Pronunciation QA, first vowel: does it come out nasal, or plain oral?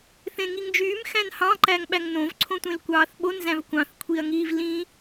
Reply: nasal